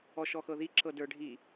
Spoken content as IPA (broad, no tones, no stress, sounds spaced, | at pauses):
ɔ ʃ ɔ x ɤ ð i ǁ ɤ d ə˞ ɖʱ i